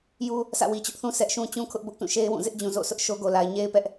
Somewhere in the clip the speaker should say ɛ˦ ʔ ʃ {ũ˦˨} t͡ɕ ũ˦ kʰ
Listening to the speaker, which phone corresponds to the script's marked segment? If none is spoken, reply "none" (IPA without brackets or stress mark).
ũ˦